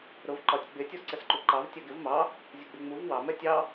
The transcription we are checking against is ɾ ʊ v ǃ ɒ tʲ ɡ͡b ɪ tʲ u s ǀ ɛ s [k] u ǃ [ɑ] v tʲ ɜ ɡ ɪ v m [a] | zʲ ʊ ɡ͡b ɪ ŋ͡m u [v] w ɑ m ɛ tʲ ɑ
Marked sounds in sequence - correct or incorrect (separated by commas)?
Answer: incorrect, correct, incorrect, correct